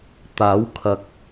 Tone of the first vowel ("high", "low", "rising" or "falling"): rising